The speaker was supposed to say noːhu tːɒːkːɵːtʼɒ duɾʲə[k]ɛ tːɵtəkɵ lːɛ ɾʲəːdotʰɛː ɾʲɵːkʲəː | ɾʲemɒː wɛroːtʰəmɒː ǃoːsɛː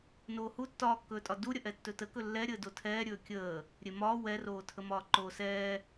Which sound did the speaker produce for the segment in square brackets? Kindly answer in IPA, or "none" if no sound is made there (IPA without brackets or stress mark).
ʔ